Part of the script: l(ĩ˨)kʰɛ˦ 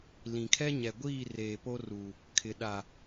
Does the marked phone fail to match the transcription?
no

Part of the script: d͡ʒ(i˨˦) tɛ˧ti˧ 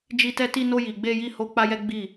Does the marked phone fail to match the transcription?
yes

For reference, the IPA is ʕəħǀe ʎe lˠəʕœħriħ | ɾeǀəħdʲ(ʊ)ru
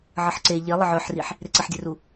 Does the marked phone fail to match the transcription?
yes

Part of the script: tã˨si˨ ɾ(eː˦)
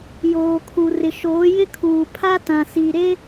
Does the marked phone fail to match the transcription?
yes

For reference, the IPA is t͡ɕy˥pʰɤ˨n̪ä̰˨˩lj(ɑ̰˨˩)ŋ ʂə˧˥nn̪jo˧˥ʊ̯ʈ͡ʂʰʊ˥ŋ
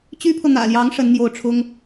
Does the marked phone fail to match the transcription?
yes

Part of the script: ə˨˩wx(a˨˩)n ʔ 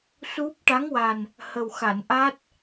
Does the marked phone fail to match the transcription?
yes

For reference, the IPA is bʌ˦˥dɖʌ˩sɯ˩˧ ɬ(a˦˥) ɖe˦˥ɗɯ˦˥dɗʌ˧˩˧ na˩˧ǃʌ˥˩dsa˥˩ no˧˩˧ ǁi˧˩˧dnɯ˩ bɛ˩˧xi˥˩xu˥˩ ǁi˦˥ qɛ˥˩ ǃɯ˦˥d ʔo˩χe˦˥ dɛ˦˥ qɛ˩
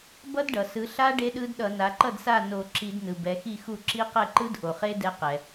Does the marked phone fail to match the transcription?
no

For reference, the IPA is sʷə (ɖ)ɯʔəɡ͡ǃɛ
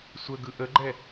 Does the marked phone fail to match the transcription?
yes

